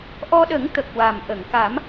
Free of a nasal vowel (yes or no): yes